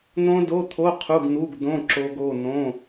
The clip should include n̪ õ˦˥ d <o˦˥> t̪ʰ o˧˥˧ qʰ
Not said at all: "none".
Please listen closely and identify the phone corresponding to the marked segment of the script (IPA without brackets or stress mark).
o˧˥˧